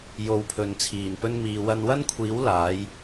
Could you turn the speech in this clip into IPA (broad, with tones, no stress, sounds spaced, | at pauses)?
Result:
j o˧ w pʰ ɵ˨˧ n t͡sʰ iː˨˩ n p ɵ˥ n m iː˨ w ɐ˧ n w ɐ˥ n kʷʰ iː˨˥ w l aː˨˥ j